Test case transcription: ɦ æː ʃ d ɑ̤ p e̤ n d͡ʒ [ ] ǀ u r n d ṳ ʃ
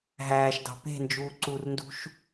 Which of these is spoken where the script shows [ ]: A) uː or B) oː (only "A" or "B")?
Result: A